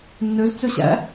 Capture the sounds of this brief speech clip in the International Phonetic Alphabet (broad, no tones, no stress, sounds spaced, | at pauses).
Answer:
nː ø z t͡s ø ɕ æ̰